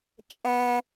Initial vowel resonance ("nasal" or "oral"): nasal